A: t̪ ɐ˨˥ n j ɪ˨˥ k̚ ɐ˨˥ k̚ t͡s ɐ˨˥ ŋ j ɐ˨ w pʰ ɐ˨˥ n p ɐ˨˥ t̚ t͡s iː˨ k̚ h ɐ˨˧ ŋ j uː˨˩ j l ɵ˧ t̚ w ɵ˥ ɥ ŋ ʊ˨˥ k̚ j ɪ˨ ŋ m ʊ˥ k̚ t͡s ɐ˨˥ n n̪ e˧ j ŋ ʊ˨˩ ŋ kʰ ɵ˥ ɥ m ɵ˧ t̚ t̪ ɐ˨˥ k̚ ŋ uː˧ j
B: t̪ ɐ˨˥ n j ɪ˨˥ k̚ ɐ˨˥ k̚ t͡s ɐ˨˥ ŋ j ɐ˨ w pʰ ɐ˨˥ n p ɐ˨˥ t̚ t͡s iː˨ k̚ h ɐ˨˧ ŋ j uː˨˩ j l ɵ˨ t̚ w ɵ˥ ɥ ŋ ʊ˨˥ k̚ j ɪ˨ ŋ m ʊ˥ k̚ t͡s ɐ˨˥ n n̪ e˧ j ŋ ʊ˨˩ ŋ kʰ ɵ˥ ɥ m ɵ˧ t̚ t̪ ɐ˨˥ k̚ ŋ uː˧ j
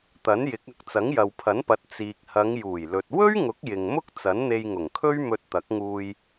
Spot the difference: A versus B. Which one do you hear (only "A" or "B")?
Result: B